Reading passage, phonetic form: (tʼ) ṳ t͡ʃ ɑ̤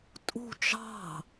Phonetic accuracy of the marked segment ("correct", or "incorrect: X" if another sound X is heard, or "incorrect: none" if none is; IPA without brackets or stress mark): correct